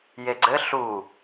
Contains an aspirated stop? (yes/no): no